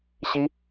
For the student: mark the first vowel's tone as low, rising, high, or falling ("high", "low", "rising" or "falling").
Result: high